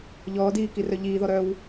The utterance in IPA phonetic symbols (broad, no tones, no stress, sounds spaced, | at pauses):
ʎ ɔː d iː k i r œ ʎ iː ð ɔ ɾ œ w